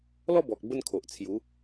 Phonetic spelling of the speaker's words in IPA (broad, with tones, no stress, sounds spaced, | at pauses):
l ɔ˥˧ b ɔ˨ k̚ b ə˥˧ n kʰ o˨ ʔ t͡sʰ j u˨˦